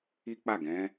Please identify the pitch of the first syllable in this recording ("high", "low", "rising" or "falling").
high